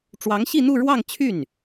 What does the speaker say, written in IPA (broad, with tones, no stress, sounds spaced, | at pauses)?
ʈ͡ʂ w ɑ˧˥ ŋ ɕ i˥˧ n̪ u˥˧ ɻ w ɑ˥˧ ŋ t͡ɕʰ y˥˩ n